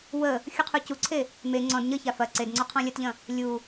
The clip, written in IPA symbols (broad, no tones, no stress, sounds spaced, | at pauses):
w ə | xʲ u qʰ u c u ǀʰ e | m e ŋ͡ǀ ɔ̃ d ɲ ə ç a f ɐ ǀ e d ŋ͡ǀ ɔ qʰ ɔ̃ lʲ ɐ t ʎ ɐ̃ | lʲ u